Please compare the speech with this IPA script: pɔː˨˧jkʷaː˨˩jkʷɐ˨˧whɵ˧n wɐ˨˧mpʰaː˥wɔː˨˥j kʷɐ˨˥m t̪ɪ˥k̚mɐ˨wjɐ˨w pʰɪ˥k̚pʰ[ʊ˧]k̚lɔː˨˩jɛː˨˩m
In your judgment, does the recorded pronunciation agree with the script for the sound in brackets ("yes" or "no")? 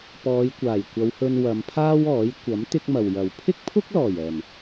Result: no